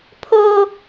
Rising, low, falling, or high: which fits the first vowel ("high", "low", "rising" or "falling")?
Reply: high